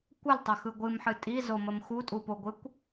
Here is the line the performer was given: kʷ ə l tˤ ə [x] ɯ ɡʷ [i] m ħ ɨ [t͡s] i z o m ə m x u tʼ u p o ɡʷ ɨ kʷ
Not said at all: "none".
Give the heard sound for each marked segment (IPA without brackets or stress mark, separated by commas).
x, ɨ, tʼ